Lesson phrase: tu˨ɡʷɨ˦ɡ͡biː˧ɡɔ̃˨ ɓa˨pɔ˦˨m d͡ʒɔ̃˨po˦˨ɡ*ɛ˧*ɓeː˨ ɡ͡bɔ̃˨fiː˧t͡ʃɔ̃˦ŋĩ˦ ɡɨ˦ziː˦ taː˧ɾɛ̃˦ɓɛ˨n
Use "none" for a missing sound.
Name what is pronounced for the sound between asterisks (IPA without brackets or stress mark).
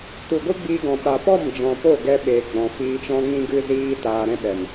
ɛ˧